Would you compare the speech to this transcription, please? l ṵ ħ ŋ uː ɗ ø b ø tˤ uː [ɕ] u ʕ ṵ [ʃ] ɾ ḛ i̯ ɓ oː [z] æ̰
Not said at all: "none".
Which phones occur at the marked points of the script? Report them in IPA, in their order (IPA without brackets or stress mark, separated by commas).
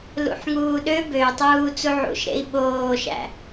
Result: t͡s, ʃ, ʃ